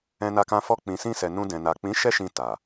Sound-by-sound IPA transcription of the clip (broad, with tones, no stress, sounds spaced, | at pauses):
ɛ̃˧ n a˧ k ã˧ f ɔ˦ k͡p ĩ˧ s ĩ˦ s ɛ˧ n ũ˧ d ɛ̃˨ n a˨ k͡p ĩ˨˦ ʃ ɛ˦ ʃ ĩ˧ t a˨